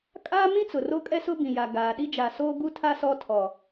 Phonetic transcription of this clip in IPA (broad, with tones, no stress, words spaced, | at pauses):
kʼaː˦mĩ˦ t͡sʊ˨ro˦kʼɛ˦sʊ˦ bĩ˨ja˨ ɡaː˨ ɗi˦d͡ʒa˨soː˦ ɡu˦tʰa˦ sɔ˦ tʰɔ˨